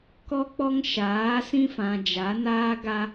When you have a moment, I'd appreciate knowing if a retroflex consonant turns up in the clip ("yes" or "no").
no